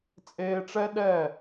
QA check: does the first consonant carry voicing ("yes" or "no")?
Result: no